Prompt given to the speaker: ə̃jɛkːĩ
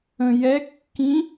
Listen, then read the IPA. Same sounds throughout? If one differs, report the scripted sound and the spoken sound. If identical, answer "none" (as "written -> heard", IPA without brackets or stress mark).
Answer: none